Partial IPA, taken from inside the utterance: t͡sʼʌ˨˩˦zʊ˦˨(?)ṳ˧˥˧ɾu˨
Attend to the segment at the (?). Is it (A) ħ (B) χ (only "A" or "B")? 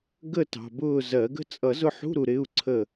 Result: A